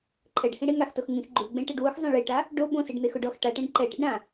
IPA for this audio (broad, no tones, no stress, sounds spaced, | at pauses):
ǃʰ ɛ ɖ h ĩ ɽ e ŋ a x t o x ŋ ĩ x ɡ͡ǃ u ɡ͡b ẽ ʈ e ɖ w ʊ x zˤ ẽ ɭ i ʈ a | ɖ o b õ s i ɖ n̪ e x ʊ ɖ ɔ x ʈ a ʈ ẽ ɖ ǃ ɛ ʈ ḛ ɖ ɾ ã